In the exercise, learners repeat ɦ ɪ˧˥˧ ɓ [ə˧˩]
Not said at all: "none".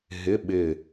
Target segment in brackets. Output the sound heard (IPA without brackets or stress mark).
ɪ˧˩